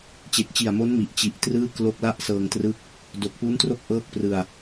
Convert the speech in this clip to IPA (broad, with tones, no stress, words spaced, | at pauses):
t͡ɕe˨˩k̚t͡ɕi˨˩a̯mo˦˥n mi˨˩ʔ t͡ɕi˨˩ʔ trɯː˥˩klo˦˥k̚ la˥˩ʔsɤː˧ŋtrɯ˥˩k̚ | do˨˩k̚pu˦˥n tro˥˩k̚ʔɤː˥˩k̚ prɯ˧a̯